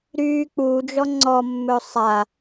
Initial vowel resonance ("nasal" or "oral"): oral